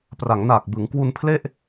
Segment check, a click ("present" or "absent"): absent